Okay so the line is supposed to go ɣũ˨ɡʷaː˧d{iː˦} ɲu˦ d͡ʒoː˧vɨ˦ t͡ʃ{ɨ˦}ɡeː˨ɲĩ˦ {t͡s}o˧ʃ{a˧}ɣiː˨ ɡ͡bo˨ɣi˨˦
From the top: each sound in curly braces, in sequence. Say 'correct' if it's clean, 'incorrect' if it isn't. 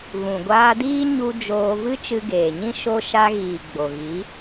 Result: correct, incorrect, incorrect, correct

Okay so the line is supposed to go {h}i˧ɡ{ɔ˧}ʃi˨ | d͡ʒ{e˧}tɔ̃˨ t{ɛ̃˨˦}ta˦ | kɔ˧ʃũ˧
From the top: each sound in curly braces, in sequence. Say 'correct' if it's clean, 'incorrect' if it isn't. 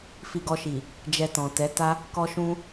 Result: incorrect, correct, incorrect, incorrect

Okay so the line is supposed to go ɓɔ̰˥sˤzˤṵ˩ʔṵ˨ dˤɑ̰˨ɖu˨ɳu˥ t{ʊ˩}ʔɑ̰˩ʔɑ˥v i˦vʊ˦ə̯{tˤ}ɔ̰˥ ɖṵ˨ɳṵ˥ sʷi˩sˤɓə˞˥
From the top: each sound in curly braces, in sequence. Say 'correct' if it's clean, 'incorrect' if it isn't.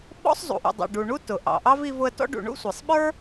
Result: correct, incorrect

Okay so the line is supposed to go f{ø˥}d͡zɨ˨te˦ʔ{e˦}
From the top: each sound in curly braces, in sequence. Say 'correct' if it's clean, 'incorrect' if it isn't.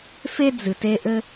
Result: incorrect, incorrect

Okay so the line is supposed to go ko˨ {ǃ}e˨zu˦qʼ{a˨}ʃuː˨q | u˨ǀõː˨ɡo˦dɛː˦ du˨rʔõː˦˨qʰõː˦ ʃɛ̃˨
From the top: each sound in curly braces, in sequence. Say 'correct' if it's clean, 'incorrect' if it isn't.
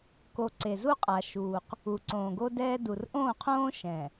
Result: incorrect, correct

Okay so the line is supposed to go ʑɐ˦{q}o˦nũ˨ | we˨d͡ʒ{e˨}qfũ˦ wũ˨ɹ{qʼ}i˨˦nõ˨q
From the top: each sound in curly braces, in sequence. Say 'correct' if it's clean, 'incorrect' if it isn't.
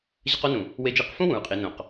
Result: correct, incorrect, correct

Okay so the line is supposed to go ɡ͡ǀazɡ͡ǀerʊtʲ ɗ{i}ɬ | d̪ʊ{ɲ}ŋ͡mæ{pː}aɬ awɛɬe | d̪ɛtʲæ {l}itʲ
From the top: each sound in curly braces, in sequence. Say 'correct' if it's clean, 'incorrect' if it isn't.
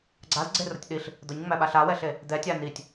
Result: correct, correct, incorrect, incorrect

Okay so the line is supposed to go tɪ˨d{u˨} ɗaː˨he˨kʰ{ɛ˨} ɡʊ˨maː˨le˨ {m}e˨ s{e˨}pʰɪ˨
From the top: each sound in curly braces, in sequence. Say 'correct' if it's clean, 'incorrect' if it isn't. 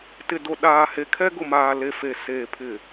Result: incorrect, incorrect, incorrect, incorrect

